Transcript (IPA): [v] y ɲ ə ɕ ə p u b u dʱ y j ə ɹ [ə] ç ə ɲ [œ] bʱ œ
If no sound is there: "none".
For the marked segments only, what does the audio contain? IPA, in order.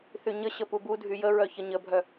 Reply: θ, œ, ə

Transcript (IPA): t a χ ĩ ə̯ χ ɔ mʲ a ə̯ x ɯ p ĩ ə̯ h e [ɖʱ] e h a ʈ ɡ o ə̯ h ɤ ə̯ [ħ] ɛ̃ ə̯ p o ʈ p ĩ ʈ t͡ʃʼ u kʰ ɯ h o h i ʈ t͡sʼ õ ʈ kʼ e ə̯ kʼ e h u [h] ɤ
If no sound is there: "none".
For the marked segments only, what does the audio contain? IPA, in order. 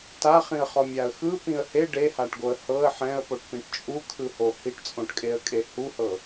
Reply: ɖ, ħ, h

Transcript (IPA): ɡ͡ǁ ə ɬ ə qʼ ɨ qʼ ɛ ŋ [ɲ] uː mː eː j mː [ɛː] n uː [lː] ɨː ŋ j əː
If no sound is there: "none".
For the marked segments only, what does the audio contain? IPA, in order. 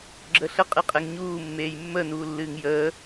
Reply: ɲ, əː, lː

